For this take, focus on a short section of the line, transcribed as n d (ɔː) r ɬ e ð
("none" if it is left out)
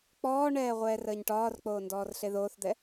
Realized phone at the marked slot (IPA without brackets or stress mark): ɔː